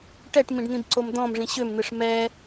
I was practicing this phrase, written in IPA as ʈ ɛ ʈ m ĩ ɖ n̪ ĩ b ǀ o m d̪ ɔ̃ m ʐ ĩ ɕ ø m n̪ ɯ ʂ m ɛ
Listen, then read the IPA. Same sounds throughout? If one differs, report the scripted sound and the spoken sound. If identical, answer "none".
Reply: none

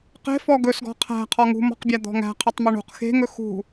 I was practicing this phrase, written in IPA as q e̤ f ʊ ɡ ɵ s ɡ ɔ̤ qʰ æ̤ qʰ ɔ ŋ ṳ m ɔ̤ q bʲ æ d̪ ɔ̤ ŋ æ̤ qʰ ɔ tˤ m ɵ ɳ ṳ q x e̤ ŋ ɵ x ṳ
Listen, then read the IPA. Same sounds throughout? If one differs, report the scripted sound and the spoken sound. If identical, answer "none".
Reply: ʊ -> ɔ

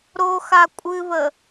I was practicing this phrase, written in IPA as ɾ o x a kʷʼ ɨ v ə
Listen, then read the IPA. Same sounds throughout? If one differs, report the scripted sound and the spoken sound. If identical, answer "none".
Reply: none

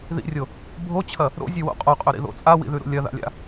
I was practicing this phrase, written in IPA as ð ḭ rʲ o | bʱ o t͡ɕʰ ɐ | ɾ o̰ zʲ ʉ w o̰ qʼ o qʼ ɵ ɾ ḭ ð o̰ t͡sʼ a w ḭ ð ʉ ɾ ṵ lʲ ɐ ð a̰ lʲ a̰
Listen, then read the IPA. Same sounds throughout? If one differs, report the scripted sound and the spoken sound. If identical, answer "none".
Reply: none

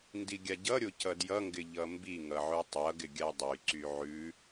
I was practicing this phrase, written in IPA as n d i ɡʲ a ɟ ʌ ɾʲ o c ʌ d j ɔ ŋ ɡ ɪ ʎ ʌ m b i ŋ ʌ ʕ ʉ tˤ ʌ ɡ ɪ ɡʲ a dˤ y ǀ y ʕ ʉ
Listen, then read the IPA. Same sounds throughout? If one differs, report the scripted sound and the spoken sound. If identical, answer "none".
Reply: ɔ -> ʌ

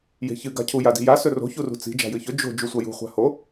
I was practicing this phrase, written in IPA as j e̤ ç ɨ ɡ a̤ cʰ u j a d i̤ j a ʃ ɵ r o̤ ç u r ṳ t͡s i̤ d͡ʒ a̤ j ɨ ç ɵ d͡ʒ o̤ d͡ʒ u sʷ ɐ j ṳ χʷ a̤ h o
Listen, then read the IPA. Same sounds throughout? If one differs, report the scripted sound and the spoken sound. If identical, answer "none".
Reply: ʃ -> s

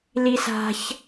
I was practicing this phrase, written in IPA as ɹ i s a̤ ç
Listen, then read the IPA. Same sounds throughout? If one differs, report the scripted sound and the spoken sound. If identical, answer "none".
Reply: ɹ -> l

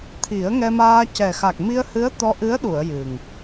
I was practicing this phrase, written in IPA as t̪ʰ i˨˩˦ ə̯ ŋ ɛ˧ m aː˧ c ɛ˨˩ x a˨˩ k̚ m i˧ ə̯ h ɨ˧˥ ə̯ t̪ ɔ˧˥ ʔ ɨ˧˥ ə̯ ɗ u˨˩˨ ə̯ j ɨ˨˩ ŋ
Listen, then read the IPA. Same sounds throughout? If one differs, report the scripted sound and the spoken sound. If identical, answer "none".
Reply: none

